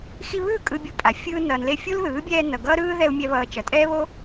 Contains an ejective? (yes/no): yes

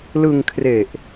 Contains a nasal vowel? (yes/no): no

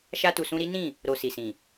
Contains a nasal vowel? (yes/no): yes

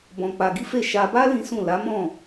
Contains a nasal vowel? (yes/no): yes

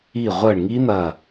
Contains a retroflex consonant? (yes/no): yes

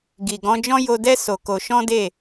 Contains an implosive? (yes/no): no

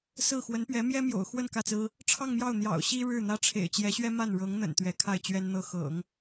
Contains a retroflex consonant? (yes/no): yes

